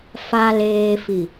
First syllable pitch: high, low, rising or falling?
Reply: low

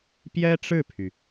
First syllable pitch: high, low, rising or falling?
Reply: high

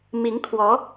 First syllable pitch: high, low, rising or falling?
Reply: rising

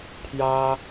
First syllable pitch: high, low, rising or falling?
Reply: high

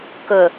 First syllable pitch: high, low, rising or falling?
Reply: low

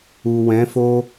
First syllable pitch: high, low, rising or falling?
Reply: low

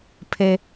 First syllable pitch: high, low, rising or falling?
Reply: low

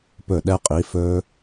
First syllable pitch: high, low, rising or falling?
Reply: falling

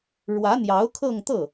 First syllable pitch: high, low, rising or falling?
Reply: rising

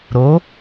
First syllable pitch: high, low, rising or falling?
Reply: rising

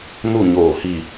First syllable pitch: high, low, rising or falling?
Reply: falling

